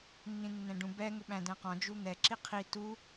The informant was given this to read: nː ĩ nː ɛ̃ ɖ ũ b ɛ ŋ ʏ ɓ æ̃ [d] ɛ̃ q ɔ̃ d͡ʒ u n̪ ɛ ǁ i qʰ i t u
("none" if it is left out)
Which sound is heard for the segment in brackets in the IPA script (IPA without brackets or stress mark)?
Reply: d